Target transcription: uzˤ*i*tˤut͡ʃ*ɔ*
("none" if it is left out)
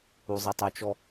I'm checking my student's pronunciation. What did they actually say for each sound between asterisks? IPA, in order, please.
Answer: i, ɔ

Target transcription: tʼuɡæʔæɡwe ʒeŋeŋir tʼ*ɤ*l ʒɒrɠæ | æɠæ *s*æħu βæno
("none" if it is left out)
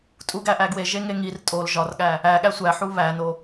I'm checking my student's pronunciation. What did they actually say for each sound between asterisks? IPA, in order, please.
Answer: o, sʷ

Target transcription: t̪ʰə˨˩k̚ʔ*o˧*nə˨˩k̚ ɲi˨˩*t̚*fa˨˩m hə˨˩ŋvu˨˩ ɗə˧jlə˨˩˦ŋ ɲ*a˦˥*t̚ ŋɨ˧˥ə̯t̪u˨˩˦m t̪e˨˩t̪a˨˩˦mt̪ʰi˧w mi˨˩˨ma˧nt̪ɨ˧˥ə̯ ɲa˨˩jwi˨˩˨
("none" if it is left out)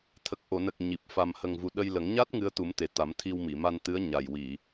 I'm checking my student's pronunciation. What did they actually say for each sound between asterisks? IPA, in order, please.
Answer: o˨˩˨, p̚, a˦˥

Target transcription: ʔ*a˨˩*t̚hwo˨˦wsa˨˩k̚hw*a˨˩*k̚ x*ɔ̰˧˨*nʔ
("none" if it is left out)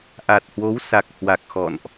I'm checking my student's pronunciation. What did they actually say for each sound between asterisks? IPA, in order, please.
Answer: a˨˩, a˨˩, ɔ̰˧˨

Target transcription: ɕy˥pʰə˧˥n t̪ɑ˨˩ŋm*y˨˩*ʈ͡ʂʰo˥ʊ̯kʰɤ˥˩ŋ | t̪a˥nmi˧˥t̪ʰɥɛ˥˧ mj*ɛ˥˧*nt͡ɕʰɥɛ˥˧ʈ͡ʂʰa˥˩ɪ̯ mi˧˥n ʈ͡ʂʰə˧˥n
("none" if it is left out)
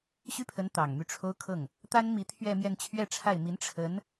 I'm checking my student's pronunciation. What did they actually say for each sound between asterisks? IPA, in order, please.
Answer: y˥˩, ɛ˥˧

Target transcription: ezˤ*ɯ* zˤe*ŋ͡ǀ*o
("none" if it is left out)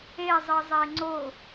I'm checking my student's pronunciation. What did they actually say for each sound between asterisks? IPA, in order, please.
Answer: ɯ, ŋ͡ǀ

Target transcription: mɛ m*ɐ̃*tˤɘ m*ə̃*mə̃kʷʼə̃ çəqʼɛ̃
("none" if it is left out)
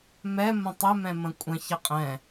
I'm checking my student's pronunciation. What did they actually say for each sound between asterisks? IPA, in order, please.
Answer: ə̃, ɛ̃

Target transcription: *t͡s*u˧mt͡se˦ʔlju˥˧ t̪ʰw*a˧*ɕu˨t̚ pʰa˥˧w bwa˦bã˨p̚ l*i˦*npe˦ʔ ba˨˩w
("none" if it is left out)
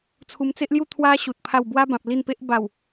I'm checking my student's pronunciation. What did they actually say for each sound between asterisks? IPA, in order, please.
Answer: t͡sʰ, a˦, i˥˧

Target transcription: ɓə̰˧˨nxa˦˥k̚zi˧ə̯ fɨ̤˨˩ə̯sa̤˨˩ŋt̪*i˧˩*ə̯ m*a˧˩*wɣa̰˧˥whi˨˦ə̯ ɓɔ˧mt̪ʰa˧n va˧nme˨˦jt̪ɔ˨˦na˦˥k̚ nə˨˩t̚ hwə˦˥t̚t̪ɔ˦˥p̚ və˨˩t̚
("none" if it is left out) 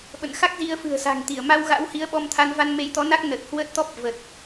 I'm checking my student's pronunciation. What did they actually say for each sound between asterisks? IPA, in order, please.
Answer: i˧˩, a˧

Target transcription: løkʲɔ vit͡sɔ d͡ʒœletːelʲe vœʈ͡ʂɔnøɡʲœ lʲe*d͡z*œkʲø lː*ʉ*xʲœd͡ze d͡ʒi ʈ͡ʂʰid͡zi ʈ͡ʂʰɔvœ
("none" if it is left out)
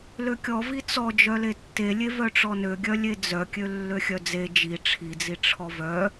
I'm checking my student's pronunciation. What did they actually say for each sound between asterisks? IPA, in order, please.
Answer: d͡z, ø

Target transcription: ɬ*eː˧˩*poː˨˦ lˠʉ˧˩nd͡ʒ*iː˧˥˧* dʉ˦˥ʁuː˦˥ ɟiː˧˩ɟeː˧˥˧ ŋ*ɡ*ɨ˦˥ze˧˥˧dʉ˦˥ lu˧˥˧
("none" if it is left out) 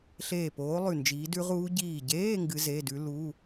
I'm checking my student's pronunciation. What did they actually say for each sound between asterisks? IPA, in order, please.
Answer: eː˧˩, iː˨˦, ɡ

